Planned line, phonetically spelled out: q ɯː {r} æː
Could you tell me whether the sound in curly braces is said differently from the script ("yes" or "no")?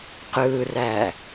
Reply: no